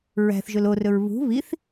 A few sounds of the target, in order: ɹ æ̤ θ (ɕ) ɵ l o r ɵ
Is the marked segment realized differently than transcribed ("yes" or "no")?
yes